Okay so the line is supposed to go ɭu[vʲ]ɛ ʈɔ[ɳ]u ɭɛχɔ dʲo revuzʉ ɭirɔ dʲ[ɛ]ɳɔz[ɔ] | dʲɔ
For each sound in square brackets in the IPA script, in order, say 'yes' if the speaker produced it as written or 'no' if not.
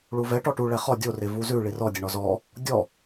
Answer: no, no, yes, yes

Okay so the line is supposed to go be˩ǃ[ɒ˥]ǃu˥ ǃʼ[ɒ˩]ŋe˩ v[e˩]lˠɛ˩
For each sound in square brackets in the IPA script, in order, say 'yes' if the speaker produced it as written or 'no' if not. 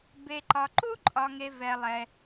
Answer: no, yes, no

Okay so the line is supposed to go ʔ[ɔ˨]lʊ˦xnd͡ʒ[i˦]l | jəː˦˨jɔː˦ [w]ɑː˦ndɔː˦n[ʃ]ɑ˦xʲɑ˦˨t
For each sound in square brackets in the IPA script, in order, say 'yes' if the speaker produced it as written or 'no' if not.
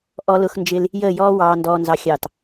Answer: no, no, yes, no

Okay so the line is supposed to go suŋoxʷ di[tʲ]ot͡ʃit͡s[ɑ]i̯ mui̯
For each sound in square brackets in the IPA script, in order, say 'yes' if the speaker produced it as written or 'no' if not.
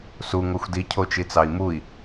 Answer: no, yes

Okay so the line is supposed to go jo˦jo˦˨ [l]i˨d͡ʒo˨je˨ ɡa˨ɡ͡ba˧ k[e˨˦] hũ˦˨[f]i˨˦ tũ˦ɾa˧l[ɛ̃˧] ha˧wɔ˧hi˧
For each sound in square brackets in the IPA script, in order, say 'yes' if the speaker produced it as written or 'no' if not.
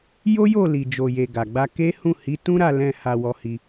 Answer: yes, no, no, yes

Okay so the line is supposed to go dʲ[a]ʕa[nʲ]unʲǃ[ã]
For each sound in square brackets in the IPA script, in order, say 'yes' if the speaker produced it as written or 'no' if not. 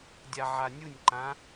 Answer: yes, yes, yes

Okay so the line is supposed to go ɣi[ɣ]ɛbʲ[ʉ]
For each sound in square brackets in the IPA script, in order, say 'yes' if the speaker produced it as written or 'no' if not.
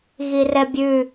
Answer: no, yes

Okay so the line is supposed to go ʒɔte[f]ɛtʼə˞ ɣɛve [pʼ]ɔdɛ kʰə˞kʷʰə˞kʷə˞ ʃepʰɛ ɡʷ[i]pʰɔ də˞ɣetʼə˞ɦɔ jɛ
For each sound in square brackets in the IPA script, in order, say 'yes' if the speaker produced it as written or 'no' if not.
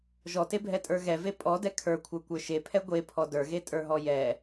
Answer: no, yes, no

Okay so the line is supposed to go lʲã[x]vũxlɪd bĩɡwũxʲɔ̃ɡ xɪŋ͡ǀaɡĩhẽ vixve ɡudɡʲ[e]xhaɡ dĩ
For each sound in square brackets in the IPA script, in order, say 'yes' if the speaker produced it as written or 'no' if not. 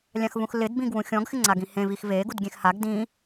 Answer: yes, no

